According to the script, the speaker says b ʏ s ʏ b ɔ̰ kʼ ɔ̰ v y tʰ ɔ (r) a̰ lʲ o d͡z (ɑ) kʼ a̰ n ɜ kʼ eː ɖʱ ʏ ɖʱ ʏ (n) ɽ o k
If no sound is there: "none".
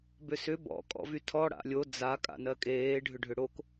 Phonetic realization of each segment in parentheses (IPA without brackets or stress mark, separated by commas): ɽ, a, none